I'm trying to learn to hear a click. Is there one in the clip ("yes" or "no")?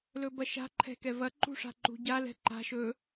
yes